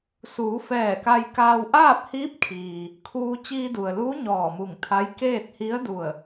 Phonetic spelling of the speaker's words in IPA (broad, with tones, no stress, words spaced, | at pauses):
suː˩˧fɛː˧˩ka˧jkaː˧w ʔaː˥˨p̚hiː˧˥p̚ kʰiː˩ | kʰuː˧ t͡ɕiː˧du˩ə̯luː˧˥ ɲɔː˧˩mu˧˩ŋt̪ʰa˧˥j keː˥˨t̚hi˧˥ə̯du˧˩ə̯